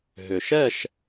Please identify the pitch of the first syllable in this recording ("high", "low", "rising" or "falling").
low